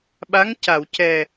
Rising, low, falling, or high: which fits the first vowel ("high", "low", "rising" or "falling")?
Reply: rising